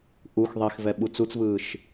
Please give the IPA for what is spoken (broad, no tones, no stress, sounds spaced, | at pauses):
ʔ u x ðˤ i x v ɛ ɓ u t͡s u t͡s v ɯː ʃ